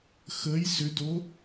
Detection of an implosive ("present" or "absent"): absent